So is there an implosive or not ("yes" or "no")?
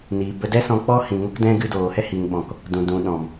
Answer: yes